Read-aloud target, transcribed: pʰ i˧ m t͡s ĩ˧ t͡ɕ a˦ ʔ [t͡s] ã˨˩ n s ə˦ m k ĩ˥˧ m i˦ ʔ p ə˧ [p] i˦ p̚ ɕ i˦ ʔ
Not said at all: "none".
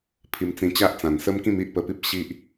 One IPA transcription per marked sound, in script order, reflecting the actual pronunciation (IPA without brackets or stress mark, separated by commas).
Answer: t͡s, p